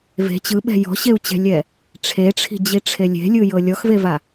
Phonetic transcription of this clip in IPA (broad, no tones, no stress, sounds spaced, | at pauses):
v e̤ t͡ɕ ɯ ɓ ɛ̤ j ɔ̤ ɕ e u̯ t͡ɕ ɛ̤ lʲ ɛ | ʈ͡ʂʰ e ʈ͡ʂʰ i̤ d͡ʑ i ʈ͡ʂʰ e lʲ e̤ lʲ ɯ j ɤ lʲ ɔ x v e v a